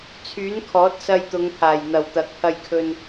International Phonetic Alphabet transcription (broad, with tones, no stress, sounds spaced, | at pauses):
t͡sʰ yː˨˥ n kʰ ɔː˨˥ t̚ s ɐ˧ j t̪ ʊ˨˧ ŋ pʰ aː˨˩ j n̪ ɐ˨˩ w t̪ ɐ˨ k̚ pʰ ɐ˧ j kʰ ɵ˧ n